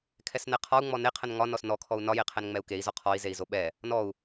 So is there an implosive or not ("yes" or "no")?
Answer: yes